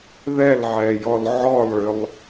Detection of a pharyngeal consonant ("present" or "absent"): present